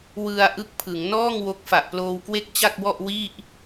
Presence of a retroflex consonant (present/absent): absent